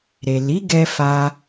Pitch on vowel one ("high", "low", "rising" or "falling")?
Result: low